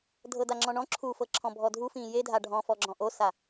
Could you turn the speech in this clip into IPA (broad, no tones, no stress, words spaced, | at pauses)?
dʱɤdaŋ͡ǁɔ̃ɳɔ̃ ǁʰufɤǁʰɔ̃ bʱɔdʱufĩː jedʱa ɖʱɔ̃fɔɡ͡ǁɔ̃ ʔosa